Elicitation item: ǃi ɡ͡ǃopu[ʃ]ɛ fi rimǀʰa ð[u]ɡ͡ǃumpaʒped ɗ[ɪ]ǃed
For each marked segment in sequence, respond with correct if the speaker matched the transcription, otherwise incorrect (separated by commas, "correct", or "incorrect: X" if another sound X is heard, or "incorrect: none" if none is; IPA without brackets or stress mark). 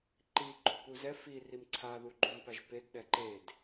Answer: incorrect: z, correct, incorrect: ɛ